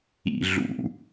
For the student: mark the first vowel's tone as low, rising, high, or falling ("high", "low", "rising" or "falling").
low